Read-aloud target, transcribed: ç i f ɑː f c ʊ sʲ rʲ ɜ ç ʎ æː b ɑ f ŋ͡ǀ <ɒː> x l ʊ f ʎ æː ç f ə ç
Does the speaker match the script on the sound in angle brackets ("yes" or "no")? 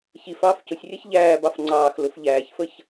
no